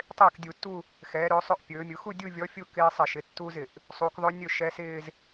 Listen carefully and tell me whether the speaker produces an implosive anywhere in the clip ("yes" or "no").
no